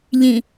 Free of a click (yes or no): yes